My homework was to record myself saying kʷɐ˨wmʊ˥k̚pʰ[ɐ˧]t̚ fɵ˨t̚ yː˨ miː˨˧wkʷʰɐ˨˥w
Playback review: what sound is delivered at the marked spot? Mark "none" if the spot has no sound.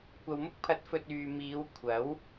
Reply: ɐ˨˥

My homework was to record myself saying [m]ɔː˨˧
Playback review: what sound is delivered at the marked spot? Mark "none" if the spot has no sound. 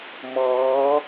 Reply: m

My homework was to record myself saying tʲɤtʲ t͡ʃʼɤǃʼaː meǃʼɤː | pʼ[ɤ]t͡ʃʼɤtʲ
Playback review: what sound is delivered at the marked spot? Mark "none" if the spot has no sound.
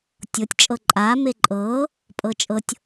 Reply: ɤ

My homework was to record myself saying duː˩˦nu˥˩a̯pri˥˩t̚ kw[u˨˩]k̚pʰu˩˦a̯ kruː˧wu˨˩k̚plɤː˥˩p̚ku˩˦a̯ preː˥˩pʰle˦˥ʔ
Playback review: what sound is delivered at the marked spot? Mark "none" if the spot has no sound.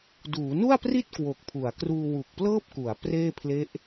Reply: o˨˩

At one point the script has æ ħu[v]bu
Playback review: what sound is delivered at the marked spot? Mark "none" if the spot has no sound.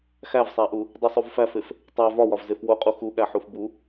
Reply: f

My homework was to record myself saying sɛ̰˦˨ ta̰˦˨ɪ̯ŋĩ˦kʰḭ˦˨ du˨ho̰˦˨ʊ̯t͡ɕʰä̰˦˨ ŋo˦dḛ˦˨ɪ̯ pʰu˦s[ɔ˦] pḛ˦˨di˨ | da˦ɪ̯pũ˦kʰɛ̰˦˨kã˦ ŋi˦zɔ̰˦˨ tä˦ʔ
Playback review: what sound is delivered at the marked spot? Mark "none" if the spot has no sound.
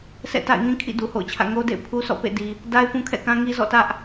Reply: ɔ̰˦˨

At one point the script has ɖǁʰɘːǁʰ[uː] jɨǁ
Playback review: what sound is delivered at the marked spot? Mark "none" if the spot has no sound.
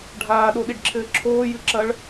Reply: oː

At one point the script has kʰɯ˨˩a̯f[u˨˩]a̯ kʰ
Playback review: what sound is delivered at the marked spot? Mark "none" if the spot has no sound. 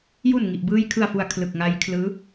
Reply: u˨˩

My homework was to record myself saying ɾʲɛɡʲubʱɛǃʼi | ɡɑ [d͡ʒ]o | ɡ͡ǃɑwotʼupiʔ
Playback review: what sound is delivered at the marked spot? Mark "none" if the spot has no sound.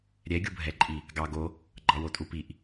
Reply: ɡ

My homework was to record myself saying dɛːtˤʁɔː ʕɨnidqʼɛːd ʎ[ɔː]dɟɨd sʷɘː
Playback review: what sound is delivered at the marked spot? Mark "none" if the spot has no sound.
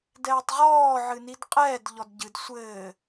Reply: ɔ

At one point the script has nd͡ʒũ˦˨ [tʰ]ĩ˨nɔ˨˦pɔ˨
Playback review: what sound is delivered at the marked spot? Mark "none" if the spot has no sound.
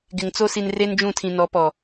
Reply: tʰ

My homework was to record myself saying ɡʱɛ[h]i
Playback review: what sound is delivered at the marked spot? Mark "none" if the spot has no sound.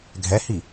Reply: h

